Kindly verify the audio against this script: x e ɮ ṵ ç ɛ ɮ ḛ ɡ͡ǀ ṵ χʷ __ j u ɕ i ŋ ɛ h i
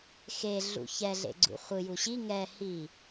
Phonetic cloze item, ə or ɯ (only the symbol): ɯ